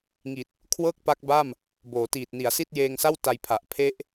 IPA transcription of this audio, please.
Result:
ŋ i˨˩ t̚ | kʰ w ɤː˥˩ k̚ p a˦˥ k̚ b a˥˩ m | b oː˩˦ t iː˨˩ t̚ n i˩˦ a̯ s i˥˩ t̚ j eː˧ ŋ s a˥˩ w t a˧ j pʰ a˨˩ ʔ pʰ e˦˥ ʔ

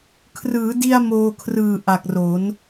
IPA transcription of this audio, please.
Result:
kʰ r ɯː˩˦ d i˧ a̯ m oː˧ kʰ r ɯː˨˩ ʔ a˨˩ k̚ r o˩˦ n

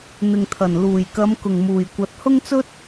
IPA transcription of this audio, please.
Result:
n̪ ɪ˨ ŋ t̪ʰ ɐ˨˩ n l uː˨˩ j k ɐ˨˧ m k ʊ˨˩ ŋ m uː˨˩ j kʷ ɐ˨˥ t̚ h ʊ˥ ŋ t͡s ɵ˥ t̚

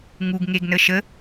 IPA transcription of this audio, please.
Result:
ŋ u ɡ ŋ e ɡ n ə ʃ ə

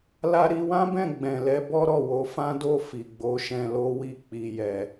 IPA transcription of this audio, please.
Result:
l a˧ ɾ i˧ w ã˦ b ɛ̃˦˨ ɡ͡b ɛ̃˨ l ɛ˧ b ɔ˦ ɾ ɔ˦˨ w o˨˦ f ã˦ d o˦˨ f i˨ ɡ͡b o˨˦ ʃ ɛ̃˧ l o˦ w i˦˨ k͡p i˧ j ɛ˧

